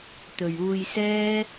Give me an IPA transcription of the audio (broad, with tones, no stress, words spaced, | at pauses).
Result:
t̪ɵ˨ɥuː˧jsɛː˥